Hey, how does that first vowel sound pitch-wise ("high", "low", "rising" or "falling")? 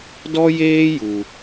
high